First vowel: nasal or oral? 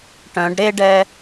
nasal